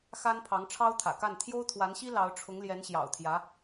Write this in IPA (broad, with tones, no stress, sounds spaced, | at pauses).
x a˥ n pʰ ɑ˧˥ ŋ ʈ͡ʂʰ ɑ˥ ʊ̯ t̪ʰ ä̰˨˩ k a˥˩ n t̪ʰ j o˥ ʊ̯ t̪ʰ w a˧˥ n ɕ i˥ l ɑ˧˥ ʊ̯ ʈ͡ʂʰ ʊ˧˥ ŋ l j ɛ˧˥ n ɕ j ɑ̰˨˩ ʊ̯ t̪ʰ j ä˧˥